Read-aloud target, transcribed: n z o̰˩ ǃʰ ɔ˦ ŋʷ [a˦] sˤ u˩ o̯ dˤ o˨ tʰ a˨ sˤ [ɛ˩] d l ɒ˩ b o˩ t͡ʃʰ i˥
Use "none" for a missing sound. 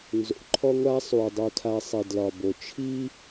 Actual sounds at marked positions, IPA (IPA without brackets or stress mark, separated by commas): a˦, ɛ˩